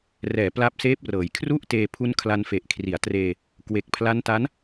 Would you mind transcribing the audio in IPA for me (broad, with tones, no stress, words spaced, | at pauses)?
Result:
rɛː˩˦ pla˦˥p̚seː˦˥p̚rɤː˩˦j kʰru˥˩ʔteː˧ pʰu˦˥nkʰla˧nfe˨˩ʔ kʰri˩˦a̯treː˧ | kwe˨˩k̚pʰla˦˥nta˦˥n